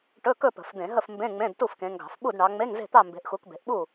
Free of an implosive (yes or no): no